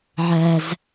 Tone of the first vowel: high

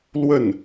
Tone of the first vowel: falling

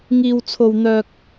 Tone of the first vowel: high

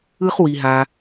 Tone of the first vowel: high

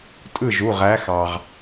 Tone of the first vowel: falling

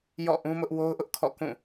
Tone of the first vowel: falling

